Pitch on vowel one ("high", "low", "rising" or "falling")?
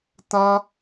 high